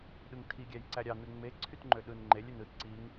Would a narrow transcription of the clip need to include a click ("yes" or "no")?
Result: yes